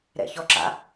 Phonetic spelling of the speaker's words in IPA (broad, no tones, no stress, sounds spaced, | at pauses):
ɾ ɛ̰ ç ɔ ǁ a̰